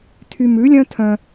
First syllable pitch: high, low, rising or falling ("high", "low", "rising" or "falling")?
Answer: high